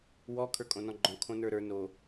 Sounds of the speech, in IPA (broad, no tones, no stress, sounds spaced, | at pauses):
w ɔ kʰ ə˞ kʼ õ n ɔ̃ ɡ͡ǃ ɔ̃ kʰ õ n ə˞ ɾ ə˞ n o